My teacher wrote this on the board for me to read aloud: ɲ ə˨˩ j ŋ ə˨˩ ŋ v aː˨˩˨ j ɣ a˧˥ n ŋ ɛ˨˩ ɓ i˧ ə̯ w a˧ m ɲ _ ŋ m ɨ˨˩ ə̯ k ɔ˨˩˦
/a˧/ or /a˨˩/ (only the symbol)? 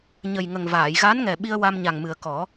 a˨˩